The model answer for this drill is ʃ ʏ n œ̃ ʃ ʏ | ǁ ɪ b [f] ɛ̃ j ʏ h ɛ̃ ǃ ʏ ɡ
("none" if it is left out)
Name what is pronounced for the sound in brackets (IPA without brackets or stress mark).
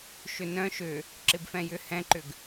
f